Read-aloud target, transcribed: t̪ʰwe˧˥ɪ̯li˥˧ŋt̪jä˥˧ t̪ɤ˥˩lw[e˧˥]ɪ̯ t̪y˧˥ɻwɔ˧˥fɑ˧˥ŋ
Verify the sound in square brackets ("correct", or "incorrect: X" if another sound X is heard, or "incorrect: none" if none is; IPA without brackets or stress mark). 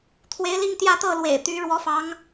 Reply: incorrect: ḛ˨˩